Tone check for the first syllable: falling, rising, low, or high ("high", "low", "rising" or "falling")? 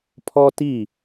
high